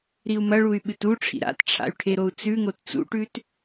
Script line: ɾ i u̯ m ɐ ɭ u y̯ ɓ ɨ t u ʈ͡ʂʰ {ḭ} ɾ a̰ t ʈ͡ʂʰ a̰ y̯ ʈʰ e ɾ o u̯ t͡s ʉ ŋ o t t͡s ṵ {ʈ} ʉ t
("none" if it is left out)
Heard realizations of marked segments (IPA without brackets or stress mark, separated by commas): ḭ, ʈ